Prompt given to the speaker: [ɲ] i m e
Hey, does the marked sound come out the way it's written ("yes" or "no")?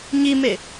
yes